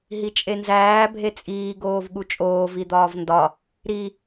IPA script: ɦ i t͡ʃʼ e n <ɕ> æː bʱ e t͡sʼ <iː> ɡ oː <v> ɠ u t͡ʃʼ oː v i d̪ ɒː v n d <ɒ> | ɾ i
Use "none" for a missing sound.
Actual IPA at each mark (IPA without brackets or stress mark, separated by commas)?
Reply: z, iː, v, ɒ